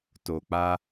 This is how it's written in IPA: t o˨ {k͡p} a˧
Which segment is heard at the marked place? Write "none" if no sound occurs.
k͡p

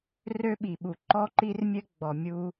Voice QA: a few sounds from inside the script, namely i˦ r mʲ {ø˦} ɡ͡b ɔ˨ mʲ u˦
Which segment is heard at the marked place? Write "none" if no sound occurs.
ɘ˦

